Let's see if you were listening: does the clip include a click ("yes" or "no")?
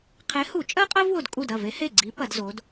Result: yes